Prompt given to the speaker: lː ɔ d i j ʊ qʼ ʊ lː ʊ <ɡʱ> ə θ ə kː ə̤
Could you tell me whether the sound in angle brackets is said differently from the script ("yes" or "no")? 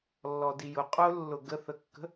yes